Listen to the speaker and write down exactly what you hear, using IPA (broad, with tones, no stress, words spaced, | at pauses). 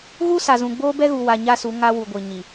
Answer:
ɣu˦sa˨zũ˨ ɡ͡boː˦bɛ˦ɣu˨wa˨ ɲa˦su˨˦ ŋa˦wu˨ɡʷi˨ ɲi˨